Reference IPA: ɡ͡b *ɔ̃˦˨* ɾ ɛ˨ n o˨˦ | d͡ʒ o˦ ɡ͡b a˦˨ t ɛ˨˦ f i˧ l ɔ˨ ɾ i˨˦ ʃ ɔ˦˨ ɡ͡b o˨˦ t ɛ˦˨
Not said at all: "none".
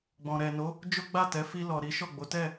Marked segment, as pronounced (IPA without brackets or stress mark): ɔ̃˨